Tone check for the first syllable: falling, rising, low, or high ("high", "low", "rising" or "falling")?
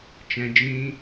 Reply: high